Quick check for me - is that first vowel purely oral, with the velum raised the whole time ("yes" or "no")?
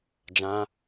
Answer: no